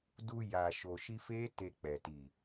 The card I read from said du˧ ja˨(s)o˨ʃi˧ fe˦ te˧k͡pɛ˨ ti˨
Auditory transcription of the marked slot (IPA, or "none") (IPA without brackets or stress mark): ʃ